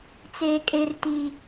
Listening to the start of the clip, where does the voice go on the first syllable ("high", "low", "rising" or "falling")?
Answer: low